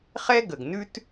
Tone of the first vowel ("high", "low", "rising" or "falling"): high